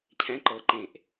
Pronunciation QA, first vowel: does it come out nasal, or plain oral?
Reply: nasal